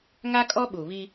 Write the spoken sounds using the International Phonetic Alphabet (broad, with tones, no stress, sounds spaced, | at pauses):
ŋ a˦ kʼ ɔ˦ ɓ u˨ β i˦